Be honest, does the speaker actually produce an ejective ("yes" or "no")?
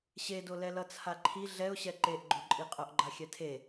yes